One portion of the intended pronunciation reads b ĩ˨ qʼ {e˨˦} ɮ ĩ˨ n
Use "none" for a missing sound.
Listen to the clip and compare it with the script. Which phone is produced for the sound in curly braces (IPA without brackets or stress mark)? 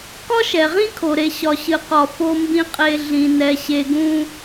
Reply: e˨